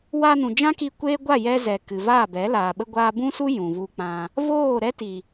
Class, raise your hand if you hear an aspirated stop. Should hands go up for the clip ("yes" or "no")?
no